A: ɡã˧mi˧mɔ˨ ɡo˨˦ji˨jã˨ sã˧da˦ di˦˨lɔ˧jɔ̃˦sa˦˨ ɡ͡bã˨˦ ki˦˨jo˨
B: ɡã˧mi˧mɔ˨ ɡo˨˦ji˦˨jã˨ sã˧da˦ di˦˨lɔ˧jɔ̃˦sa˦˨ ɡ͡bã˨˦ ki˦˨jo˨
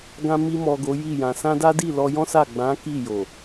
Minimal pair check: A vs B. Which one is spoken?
B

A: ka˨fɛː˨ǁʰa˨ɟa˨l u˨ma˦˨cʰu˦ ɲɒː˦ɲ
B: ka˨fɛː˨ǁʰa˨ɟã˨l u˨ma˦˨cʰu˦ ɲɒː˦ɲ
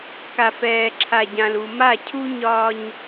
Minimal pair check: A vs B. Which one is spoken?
B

